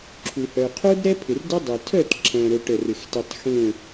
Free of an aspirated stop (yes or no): no